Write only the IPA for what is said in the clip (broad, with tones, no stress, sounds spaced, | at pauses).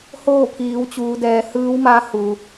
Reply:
h oː˥˨ pʰ iː˩˧ w t͡ɕ uː˩˧ d ɛː˩˧ h ɯː˧˥ w m a˧˥ h u˩